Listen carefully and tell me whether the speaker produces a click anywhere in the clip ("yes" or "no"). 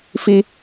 no